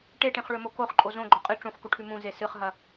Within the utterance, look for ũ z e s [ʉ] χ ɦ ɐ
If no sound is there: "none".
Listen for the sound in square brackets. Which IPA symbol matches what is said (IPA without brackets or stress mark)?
ɨ